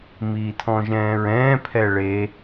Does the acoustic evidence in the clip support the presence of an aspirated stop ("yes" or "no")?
yes